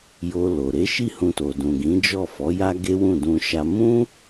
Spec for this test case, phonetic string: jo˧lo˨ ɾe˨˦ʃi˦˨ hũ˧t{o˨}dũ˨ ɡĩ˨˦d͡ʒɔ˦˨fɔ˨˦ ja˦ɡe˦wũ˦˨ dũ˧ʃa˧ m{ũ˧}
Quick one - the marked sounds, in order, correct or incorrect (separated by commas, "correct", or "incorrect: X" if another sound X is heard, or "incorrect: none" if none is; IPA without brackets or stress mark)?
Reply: correct, incorrect: ũ˦